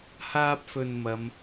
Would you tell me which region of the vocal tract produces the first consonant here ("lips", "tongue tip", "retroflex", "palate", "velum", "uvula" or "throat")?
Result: throat